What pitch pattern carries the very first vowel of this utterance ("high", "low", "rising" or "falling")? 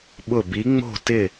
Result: falling